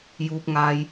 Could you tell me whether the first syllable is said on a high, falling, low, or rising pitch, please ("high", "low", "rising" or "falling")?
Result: low